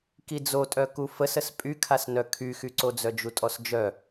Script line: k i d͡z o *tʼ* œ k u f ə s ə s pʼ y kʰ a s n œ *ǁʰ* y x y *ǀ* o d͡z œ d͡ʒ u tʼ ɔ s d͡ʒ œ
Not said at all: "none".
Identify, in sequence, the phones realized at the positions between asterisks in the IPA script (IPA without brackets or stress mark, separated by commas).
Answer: tʼ, kʰ, ǀ